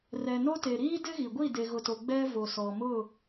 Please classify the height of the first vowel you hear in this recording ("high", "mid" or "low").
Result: mid